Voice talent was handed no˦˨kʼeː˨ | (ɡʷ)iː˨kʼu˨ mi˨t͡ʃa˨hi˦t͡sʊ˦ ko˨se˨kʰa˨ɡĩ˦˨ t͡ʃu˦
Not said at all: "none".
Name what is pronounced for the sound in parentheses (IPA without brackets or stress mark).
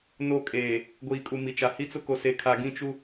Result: ɡʷ